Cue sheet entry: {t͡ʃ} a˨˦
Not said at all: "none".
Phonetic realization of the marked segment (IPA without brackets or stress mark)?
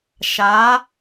ʃ